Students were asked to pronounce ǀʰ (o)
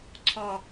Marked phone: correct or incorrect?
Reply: incorrect